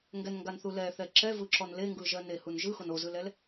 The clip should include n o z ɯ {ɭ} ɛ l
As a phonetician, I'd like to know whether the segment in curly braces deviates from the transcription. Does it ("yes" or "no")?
yes